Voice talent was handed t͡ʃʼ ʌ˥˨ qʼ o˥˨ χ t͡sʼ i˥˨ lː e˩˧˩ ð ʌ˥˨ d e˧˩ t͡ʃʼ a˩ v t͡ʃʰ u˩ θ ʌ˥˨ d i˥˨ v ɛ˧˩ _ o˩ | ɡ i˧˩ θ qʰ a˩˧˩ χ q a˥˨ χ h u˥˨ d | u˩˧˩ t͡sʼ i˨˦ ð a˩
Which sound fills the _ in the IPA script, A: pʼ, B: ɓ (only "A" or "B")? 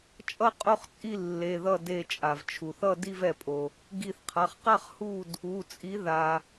A